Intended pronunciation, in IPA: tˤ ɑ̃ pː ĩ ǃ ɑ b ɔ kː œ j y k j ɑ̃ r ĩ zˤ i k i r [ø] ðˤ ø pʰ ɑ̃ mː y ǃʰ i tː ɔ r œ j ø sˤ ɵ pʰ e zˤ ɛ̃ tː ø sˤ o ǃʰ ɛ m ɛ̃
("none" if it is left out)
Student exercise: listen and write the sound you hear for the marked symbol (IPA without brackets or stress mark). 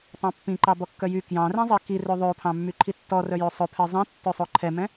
ø